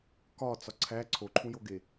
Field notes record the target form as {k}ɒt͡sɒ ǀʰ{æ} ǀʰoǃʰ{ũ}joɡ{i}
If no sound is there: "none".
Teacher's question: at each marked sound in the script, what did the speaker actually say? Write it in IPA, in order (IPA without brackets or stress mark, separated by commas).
k, æ, ũ, e